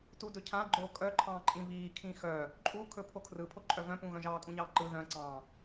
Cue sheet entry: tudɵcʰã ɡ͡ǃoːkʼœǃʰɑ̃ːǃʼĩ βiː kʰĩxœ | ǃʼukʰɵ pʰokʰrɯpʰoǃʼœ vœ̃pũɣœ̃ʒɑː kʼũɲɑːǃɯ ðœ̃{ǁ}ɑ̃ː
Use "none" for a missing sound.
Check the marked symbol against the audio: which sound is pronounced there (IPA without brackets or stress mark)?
ǀ